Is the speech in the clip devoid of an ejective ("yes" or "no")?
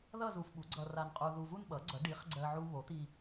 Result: no